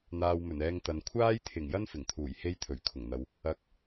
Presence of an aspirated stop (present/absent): present